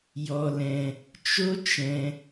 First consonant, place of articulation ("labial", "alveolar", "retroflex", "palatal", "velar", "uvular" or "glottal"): palatal